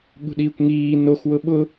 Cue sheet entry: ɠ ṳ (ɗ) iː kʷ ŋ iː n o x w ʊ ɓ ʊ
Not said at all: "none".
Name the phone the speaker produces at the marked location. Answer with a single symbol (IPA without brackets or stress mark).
ɗ